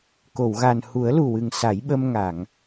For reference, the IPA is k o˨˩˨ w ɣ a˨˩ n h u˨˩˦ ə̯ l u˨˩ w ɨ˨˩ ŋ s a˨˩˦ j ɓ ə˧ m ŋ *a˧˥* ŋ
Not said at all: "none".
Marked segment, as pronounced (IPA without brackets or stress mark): a˨˩˨